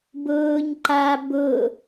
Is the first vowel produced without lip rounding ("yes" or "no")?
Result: no